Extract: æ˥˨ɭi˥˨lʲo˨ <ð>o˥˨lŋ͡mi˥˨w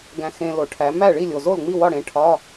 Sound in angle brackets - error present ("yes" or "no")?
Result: yes